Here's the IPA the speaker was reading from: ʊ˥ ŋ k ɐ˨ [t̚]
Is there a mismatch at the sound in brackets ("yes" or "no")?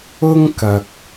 yes